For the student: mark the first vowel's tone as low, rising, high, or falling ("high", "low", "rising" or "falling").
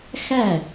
falling